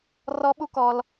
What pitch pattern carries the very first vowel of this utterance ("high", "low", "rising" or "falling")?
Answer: high